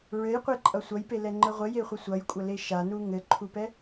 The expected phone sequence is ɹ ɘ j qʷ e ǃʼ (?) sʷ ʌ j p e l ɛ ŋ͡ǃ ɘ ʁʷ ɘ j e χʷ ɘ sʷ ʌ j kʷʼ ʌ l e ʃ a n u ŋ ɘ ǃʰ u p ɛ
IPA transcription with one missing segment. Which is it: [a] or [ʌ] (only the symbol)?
ʌ